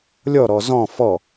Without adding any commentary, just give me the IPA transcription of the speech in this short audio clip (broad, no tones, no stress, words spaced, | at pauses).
lʲɔɾɔ zɔ̃ fɔ